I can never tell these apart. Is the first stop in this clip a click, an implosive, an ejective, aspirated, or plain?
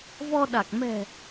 implosive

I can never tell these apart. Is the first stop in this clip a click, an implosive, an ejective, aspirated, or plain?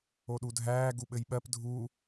implosive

